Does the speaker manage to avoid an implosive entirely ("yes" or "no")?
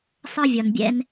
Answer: yes